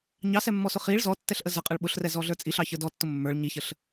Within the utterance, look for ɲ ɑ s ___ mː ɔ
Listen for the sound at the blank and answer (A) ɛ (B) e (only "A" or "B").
A